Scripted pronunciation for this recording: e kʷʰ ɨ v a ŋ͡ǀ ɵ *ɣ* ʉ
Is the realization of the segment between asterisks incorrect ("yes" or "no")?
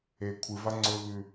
no